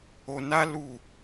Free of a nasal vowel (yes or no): yes